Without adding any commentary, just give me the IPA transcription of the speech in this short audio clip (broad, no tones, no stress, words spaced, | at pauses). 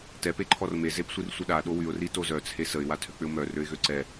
tɛ peǃʰɔrme zepsʷirsʷəɗa ɗowyʊ̯ ritozœ t͡sʰesəɪ̯ watʰøk͡pʏʊ̯mœ røɪ̯ɣøǀɛ